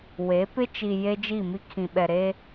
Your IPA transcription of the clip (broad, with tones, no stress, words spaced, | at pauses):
we˨˦ pɪ˦t͡ʃi˨ je˦d͡ʒi˦˨mi˦ kʰĩ˨ɓɛ˨ɾe˦